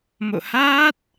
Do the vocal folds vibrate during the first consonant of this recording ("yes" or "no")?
yes